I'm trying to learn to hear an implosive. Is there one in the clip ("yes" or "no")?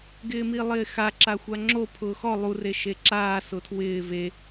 no